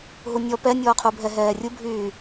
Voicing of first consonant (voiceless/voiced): voiced